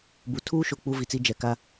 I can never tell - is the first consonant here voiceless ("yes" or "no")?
no